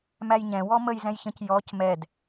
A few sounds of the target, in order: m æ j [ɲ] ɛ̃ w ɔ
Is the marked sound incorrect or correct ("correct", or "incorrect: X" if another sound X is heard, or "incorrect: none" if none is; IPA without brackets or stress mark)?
correct